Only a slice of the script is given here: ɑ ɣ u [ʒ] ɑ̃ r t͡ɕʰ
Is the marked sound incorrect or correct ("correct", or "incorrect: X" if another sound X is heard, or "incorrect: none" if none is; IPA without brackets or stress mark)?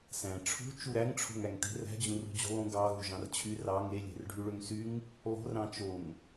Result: correct